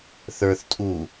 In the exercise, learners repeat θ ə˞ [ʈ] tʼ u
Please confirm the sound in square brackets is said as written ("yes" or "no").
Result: no